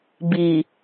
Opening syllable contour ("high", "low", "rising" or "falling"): low